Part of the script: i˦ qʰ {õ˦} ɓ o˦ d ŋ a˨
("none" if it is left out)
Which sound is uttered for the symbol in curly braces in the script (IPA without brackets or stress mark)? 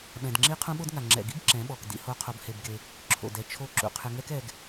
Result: ũ˦